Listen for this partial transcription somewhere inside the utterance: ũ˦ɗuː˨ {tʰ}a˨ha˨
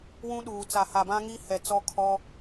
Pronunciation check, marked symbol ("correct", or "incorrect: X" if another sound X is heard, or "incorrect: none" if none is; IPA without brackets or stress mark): incorrect: t͡s